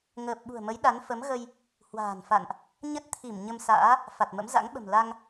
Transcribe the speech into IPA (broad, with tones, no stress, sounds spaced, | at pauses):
ŋ əː˨˩ p̚ ɓ ṳ˨˩ ə̯ m ə˨˦ j ɗ a˨˦ n f ə˨˦ m ɣ ə˧ j | h w a̤ː˨˩ n f a̰˧˨ n ʔ | ɲ ə˦˥ t̚ t̪ʰ i˧˩ m ɲ ə˧ m s a̰ː˧˥ | f a˨˩ t̚ m ə̰˧˥ m z a̰˧˥ ŋ ɓ ə̤˨˩ m l a˧ ŋ